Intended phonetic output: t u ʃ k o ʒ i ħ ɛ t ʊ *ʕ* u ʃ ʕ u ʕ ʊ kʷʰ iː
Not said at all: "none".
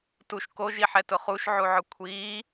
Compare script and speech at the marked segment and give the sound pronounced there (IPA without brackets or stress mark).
χ